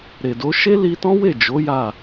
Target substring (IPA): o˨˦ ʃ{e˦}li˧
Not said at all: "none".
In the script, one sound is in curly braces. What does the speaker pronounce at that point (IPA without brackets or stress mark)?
e˦